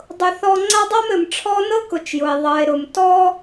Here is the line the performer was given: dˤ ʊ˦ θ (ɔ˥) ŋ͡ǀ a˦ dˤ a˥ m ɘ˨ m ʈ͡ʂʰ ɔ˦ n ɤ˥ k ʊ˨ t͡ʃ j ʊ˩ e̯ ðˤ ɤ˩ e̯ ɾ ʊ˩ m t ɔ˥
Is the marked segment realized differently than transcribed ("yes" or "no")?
no